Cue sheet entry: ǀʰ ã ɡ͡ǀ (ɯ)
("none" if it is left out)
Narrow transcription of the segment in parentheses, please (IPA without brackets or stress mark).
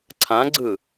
ɯ